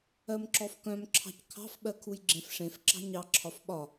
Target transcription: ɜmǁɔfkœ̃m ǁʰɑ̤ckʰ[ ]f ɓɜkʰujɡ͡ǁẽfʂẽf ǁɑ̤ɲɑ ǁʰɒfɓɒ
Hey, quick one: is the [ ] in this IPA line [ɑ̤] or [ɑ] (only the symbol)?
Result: ɑ̤